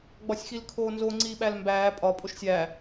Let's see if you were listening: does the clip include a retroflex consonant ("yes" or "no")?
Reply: no